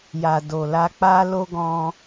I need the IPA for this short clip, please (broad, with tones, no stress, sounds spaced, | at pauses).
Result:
j a˨ d o˨ l a˧ k͡p a˦ l o˦ ɡ ɔ̃˧